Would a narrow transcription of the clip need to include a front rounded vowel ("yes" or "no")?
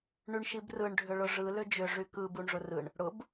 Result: yes